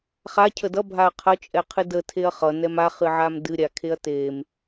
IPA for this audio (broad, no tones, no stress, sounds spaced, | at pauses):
χ a cʰ ə d ʌ bʱ a ɐ̯ qʰ ʌ t͡ʃʼ ɛ qʰ ɨ d ə tʰ e ɐ̯ χ ʌ n ɛ m a χ ɨ ʕ a m d ɨ ɾʲ a kʰ e ɐ̯ t e m